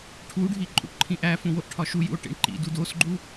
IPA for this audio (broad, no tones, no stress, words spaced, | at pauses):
ʈʰuɖʱi ǃʼṵʈǃʰĩʔæfũ woʔʈʰɒʃujṵo̯ ʈḭɳǃḭdu dosɡ͡ǃu